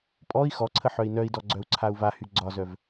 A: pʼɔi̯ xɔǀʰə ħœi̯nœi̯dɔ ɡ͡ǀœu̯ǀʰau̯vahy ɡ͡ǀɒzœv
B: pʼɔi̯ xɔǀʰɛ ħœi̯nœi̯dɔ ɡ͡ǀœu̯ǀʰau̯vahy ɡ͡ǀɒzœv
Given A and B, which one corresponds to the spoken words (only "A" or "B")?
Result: A